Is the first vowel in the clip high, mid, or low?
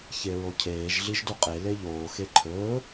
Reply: mid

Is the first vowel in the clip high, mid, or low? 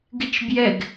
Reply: high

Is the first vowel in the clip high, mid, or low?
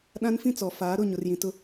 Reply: low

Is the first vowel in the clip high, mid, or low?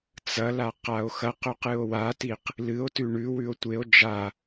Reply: low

